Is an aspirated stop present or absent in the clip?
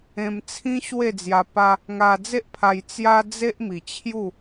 present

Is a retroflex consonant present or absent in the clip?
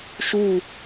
absent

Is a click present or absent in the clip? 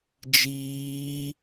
absent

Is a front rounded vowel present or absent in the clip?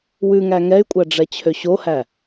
present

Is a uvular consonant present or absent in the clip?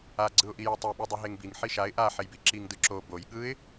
absent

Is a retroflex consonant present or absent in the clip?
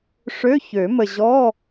present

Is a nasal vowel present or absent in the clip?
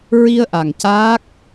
absent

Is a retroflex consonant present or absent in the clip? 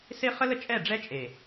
present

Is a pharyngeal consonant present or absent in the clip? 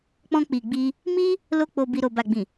absent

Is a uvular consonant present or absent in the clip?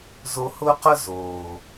present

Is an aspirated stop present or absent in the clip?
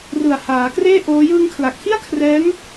present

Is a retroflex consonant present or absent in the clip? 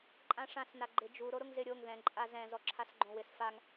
present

